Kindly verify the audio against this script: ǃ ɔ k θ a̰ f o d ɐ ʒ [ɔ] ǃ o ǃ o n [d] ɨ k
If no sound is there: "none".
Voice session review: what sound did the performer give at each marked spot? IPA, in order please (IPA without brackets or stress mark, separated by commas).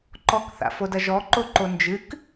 ɔ, d͡ʒ